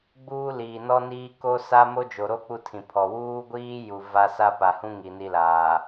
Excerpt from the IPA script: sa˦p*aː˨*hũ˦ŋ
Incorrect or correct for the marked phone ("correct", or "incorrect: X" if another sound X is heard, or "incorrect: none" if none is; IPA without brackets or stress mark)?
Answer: incorrect: a˨